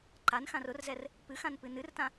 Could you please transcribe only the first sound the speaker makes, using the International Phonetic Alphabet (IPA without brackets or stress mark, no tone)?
ǃ